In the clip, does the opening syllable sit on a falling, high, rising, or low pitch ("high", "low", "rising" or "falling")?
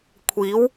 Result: rising